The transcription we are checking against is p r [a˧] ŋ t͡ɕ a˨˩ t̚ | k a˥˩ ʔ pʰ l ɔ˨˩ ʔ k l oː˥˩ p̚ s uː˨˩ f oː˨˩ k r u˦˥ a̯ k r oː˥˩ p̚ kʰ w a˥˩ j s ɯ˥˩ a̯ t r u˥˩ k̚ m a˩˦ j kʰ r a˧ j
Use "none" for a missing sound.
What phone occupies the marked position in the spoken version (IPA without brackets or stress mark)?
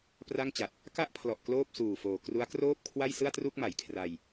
a˥˩